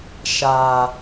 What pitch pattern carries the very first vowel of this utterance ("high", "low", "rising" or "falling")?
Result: low